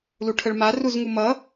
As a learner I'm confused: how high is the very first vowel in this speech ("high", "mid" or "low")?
high